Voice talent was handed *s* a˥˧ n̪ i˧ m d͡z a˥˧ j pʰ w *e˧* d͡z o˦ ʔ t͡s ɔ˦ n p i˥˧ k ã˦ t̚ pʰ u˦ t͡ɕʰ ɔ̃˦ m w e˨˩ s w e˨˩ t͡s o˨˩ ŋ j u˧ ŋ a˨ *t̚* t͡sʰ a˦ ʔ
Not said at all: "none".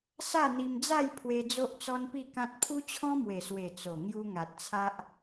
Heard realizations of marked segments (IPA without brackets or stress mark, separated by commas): s, e˧, t̚